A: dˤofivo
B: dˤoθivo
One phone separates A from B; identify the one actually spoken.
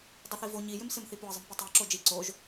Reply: B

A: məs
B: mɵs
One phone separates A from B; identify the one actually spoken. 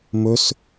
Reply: B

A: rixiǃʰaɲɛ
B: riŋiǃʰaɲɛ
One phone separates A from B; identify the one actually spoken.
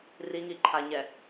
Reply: B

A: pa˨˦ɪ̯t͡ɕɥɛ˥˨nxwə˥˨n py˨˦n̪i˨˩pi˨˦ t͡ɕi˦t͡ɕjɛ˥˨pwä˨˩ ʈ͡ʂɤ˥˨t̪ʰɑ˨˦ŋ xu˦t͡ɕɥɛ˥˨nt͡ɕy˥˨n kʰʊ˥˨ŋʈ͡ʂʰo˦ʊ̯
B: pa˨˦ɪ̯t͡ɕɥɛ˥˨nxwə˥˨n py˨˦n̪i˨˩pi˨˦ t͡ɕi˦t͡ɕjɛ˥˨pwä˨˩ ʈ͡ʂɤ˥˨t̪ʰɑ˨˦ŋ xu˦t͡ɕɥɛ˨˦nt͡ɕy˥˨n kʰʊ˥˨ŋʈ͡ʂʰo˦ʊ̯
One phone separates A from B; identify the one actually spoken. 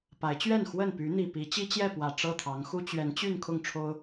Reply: B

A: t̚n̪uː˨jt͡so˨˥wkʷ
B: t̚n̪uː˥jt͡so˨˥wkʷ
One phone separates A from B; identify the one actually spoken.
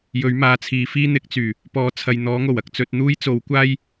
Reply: B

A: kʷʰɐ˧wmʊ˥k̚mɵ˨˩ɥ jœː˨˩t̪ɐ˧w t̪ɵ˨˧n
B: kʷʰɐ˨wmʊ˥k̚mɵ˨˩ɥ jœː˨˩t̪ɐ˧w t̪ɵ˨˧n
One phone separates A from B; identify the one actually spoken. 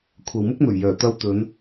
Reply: B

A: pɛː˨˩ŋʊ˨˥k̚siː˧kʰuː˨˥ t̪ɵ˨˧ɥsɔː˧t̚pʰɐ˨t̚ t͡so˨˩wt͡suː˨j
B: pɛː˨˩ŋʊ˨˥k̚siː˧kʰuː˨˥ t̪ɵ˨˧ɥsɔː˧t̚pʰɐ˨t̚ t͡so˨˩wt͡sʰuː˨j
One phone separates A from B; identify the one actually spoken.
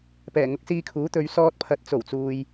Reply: A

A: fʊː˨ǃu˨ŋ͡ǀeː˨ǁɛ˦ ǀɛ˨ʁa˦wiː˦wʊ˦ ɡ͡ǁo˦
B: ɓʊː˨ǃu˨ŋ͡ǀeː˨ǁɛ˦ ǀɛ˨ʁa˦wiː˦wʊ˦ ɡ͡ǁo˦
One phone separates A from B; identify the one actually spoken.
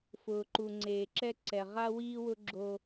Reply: A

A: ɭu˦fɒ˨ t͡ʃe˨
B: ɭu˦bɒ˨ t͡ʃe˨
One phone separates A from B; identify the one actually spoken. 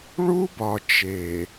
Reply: B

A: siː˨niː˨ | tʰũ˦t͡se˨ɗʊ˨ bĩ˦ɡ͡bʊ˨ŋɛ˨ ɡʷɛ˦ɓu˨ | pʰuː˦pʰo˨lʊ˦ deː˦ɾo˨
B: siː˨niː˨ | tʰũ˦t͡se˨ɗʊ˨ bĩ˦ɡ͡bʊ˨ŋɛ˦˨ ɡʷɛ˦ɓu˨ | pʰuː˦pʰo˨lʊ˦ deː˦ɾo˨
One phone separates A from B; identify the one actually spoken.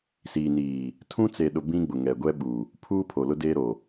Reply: A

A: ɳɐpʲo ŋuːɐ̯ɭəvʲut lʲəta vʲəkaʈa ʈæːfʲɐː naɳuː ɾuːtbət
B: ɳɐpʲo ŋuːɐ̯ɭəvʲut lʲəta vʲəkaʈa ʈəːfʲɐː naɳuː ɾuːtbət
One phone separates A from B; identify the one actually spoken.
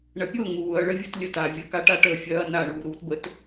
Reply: B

